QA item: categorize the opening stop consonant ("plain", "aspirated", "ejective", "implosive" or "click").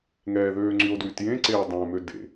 click